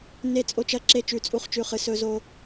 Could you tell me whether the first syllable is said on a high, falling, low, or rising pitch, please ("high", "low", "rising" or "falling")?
falling